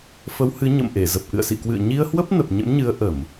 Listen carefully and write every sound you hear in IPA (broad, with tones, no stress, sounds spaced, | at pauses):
f ə˨˦ w h ɨ˨˦ ɲ ə̰˧˨ m ʔ e˧˩ z ə˨˩ p̚ ʔ ɨ̰˧˨ ə̯ s ḭ˧˨ k w ɨ̰˧˨ ə̯ ɲ i˧ ə̯ h w ə˦˥ p̚ n ə˨˩ p̚ ɲ ə̰˧˥ m ɲ ɨ˨˦ ə̯ ʔ ə˧˩˨ m